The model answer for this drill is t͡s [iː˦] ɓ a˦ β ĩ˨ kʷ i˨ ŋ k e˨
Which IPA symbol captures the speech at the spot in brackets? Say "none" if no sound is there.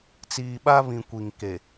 iː˨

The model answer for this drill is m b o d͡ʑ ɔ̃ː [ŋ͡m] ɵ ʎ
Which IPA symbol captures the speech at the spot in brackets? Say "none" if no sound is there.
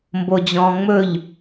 ŋ͡m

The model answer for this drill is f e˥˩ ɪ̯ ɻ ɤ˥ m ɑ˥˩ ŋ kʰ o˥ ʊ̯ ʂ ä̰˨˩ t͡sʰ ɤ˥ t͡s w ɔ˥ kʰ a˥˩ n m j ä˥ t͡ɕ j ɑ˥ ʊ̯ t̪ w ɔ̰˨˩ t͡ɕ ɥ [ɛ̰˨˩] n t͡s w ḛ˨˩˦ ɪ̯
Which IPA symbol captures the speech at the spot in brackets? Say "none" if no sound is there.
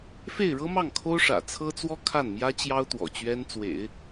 ɛ˥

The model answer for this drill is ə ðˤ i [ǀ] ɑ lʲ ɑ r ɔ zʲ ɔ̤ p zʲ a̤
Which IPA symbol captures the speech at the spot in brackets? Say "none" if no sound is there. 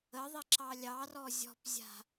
ǁ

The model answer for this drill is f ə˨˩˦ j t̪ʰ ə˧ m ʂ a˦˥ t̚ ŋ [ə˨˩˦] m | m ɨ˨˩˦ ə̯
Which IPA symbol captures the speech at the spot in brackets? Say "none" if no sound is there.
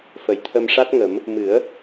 ə˨˩˦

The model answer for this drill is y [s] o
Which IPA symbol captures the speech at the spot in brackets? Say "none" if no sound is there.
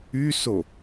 s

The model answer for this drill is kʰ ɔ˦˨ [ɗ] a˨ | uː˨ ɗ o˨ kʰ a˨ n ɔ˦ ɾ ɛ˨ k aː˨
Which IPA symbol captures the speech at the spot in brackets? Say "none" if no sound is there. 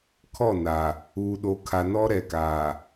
n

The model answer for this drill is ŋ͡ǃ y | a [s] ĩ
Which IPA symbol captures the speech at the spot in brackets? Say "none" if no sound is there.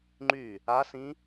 s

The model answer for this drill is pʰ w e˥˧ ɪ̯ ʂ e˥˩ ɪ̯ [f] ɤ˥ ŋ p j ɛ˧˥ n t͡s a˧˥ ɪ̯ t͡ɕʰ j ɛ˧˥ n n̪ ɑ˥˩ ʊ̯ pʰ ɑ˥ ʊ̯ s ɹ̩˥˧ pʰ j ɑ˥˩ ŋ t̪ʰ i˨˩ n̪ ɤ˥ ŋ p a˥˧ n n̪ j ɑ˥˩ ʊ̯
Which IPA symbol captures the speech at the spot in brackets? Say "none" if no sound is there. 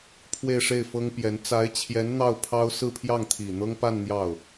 f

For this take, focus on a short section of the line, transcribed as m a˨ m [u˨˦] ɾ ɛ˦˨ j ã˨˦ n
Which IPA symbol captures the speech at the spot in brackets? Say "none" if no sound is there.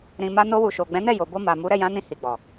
u˨˦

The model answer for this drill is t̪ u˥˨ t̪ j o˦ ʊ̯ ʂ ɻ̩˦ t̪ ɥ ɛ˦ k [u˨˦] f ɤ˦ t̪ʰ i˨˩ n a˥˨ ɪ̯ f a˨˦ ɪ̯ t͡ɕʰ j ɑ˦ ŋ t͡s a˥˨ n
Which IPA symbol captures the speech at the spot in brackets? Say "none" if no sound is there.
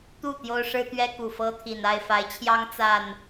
u˨˩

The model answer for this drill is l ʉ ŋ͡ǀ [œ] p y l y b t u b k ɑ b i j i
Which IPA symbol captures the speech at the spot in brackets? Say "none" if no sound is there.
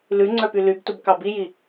œ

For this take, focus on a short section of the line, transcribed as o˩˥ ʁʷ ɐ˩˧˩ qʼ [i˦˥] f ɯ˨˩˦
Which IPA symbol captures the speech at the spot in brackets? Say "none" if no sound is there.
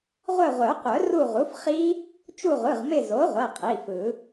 i˩˧˩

